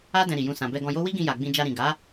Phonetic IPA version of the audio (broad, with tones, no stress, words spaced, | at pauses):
a˦ dɛ̃˧ɾi˨jũ˧ sã˨ bɛ˧ɡɔ̃˧jo˦ wi˦ɡĩ˧ ja˨ɡ͡bĩ˧ d͡ʒa˧ɾĩ˨ ɡa˨˦